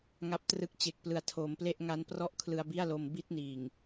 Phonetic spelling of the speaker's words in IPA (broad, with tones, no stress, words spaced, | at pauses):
ŋa˨˩p̚trɯ˨˩k̚ t͡ɕe˨˩k̚plɯ˨˩a̯tʰoː˩˦mple˥˩ʔ ŋa˦˥nprɔ˥˩ʔ kʰlɯ˧a̯bi˥˩a̯lo˧m bi˥˩t̚niː˨˩ŋ